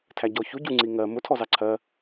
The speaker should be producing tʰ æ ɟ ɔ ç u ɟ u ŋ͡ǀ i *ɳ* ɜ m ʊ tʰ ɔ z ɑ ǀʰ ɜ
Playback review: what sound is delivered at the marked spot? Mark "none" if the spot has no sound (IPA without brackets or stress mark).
ŋ